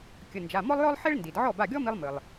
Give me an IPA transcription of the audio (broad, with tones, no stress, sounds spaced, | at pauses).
kʲ ə˩˧˩ n d͡ʒ a˩˧˩ m ɔ˥ lˠ j ɔ˥ lˠ ħ e˥ ɭ n d i˩ d ʕ ɔ˥˩ b a˥˩ ɡʲ ɔ˥ m i˧ lˠ m ɨ˩ lˠ